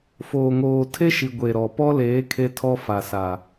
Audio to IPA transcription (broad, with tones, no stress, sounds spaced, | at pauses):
f oː˨ ŋ oː˨ tʰ e˦ ʃ i˨ ɡʷ e˨ ɾ ɔ˨ p ɔ˦ l eː˨˦ kʰ e˦ tʰ ɔ˦ f a˨ s a˨